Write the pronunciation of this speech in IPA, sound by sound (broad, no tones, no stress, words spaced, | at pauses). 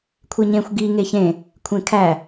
kʷʰeɲẽxʷ ɡi ŋeçẽ | kʷʰẽkʰæ